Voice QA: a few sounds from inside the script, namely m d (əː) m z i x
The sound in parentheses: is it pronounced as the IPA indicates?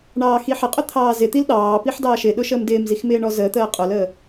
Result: no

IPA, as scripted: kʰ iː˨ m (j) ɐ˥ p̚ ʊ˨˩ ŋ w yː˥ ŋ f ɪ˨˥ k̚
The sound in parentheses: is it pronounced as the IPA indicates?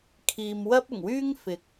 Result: no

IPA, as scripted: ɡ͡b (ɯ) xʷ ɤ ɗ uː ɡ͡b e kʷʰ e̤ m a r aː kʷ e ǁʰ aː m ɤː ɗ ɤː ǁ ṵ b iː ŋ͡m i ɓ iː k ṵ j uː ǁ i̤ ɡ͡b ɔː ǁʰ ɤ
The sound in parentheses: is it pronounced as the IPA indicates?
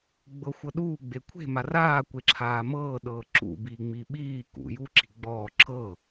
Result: no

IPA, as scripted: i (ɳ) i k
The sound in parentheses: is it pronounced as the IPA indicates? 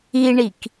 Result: yes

